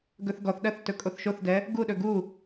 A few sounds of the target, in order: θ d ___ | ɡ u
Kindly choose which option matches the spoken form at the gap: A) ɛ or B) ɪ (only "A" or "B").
A